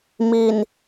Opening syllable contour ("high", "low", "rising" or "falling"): low